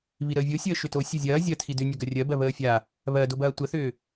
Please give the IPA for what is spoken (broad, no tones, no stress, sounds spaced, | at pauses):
β i ɾ əː vʲ o sʲ əː ʃ ʏ t o sʲ o zʲ ɐː zʲ ɐ tʰ i d ʏ nʲ ɐ ɡ ɐ rʲ ɜ b ɜ β əː fʲ a | β ɜ d o b ɐː tʷ ə θ ʏː